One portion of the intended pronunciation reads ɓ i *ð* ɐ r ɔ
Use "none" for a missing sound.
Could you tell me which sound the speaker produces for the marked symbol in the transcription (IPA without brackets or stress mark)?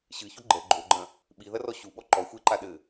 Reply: ð